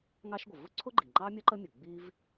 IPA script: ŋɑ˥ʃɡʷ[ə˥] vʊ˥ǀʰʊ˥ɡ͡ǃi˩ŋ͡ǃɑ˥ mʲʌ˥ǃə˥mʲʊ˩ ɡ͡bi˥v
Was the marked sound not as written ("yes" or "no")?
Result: yes